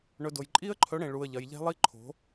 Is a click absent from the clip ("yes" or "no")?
no